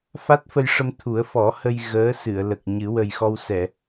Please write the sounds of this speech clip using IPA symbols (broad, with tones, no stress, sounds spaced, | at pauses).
f a˦˥ t̚ f ə˧ j ʂ ə˧ m t̪ʰ u˨˩˦ ə̯ f ɔ˨˩˦ h ə˧ j ɣ əː˧˥ s ɨ˨˩˨ ə̯ l ə˨˩ k̚ ɲ ɨ˨˩˦ w ə˨˩ j x ɔ˧ w s ɛ˨˩˨